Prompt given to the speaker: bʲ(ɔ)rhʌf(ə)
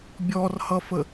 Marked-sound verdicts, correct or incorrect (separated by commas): correct, correct